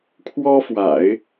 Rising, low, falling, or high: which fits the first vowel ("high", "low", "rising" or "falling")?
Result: high